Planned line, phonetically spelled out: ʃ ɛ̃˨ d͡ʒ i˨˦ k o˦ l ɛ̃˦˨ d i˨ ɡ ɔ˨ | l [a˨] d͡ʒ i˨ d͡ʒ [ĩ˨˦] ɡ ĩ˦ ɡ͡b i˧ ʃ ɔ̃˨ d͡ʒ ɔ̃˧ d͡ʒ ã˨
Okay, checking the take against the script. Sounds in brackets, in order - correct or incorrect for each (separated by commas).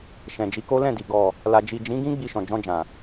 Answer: correct, correct